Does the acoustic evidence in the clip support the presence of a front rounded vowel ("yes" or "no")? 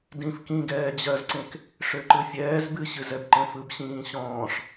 yes